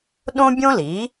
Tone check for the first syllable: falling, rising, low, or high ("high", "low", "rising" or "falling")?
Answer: high